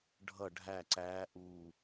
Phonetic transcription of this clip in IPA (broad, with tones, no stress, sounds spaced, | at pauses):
ɖʱ ʌ˦˨ ɖʱ æ˦˨ ǀ æː˧˥ ʔ uː˦˨